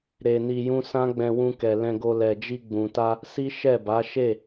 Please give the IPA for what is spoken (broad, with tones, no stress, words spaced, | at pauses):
ɾe˧ni˧jũ˦ sã˦ɡ͡bɛ̃˧wũ˧kɛ˨ lɛ̃˧ɡo˧ lɛ˨d͡ʒi˧ ɡ͡bũ˨ta˧ | si˦ʃɛ˦˨ba˨˦ ʃe˦˨